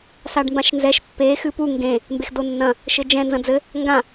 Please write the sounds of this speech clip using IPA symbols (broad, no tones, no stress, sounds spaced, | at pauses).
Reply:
s a ɖ m b ã ʃ n z ɛ ʃ pː e x ɨ p u ŋ ɡ ẽ | m b e x d o nː ɐ̃ | ʃ ɘ d͡ʒ ɛ̃ n z ɐ̃ d͡z ɘ | ŋ ɡ ã